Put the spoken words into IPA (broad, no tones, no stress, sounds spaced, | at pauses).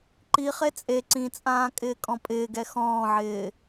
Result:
ǃ i χ e t͡sʼ e ǀ ĩ t͡sʼ ãː kʼ ɪː kʼ ɔ̃ pʼ ɪː ɡ ɛ x ɔ̃ː ʕ ɪː